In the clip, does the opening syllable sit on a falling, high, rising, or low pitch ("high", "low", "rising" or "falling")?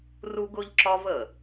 high